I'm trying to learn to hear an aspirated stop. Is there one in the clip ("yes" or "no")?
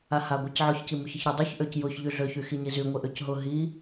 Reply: no